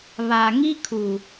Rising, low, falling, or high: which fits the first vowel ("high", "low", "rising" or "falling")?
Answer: low